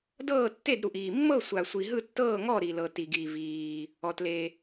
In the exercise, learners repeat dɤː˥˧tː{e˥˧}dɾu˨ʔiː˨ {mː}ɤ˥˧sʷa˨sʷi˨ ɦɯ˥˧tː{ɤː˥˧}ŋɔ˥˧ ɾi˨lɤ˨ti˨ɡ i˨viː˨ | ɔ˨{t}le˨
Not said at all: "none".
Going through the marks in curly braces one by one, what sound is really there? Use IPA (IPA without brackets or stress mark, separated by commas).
e˥˧, mː, ɤː˥˧, t